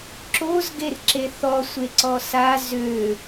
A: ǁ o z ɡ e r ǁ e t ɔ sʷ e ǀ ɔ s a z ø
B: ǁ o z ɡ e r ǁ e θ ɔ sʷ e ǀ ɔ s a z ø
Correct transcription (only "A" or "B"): B